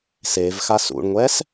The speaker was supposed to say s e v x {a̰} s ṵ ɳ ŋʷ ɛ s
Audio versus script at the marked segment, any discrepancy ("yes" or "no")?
yes